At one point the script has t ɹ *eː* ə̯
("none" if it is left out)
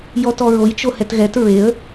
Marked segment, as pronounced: e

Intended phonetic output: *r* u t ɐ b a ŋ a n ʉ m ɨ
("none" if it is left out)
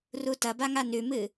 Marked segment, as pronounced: r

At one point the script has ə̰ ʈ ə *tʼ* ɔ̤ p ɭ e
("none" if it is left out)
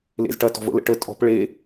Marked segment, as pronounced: tʼ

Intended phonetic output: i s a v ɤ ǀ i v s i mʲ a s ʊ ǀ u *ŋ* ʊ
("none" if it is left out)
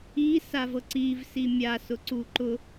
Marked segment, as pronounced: ǃ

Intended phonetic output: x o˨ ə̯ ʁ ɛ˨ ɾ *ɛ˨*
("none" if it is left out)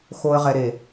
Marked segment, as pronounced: e˨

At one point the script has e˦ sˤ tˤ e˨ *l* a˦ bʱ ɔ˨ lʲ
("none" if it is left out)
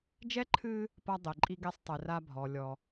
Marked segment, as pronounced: r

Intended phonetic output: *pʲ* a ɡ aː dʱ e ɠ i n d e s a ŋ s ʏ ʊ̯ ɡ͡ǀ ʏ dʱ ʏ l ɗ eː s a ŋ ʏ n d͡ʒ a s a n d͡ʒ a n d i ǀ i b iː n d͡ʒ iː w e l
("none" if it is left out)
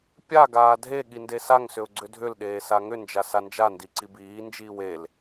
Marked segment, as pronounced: pʲ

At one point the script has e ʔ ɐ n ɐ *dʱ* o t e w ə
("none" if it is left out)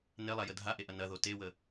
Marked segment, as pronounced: ð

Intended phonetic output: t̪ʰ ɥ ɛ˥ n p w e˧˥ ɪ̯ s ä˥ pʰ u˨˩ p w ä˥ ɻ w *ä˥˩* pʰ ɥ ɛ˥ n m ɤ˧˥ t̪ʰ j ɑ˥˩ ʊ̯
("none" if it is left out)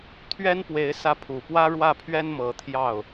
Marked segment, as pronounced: ä˥˩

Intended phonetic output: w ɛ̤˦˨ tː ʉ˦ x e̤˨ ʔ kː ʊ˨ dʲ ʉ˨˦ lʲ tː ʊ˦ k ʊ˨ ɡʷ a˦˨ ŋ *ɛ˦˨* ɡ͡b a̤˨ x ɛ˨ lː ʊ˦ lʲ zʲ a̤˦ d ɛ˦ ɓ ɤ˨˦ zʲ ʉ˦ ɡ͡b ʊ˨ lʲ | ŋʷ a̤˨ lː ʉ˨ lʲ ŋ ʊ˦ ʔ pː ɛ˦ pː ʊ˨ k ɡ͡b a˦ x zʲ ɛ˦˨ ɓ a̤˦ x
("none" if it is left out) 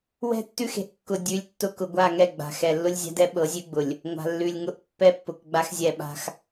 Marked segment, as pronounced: ɛ˦˨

